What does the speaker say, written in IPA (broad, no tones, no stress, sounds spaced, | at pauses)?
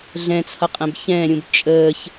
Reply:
ɮ ɛ̃ t͡sʰ ʌ qʼ ɛ̃ b ç ɛ̃ː ɾʲ ũ b t͡ʃʼ əː ç